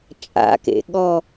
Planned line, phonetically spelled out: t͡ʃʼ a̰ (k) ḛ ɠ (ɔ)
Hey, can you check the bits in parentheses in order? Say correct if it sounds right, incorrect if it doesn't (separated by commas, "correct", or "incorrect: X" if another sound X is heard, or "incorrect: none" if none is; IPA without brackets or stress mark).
correct, correct